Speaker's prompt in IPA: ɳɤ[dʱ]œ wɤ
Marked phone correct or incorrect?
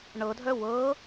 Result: correct